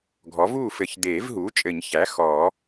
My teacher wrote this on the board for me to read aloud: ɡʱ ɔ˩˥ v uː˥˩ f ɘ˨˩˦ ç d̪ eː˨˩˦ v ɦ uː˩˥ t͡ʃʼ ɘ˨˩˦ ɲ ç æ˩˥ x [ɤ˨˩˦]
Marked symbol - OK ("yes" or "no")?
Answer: no